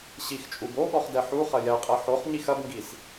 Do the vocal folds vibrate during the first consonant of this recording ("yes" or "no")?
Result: no